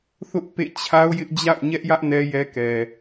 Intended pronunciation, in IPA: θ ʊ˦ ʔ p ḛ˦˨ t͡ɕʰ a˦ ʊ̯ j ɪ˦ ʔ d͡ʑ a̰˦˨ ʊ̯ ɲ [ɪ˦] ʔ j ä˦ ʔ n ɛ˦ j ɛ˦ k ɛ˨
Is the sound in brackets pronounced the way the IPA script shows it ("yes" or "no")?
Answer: no